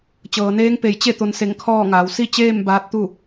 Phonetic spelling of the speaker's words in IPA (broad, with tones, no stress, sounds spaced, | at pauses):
t͡ɕ ɤː˩ n eː˧˥ ŋ p e˧˩ j t͡ɕ e˥˨ t̪ o˧ n s e˧˩ ŋ kʰ ɔː˥˨ ŋ aː˩˧ w s i˥˨ t͡ɕ eː˥˨ m b aː˧˥ t̚ t̪ u˥˨